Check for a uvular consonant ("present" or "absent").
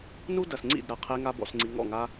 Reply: present